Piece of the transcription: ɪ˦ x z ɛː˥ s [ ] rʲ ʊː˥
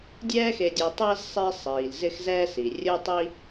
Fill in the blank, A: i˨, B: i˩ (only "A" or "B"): B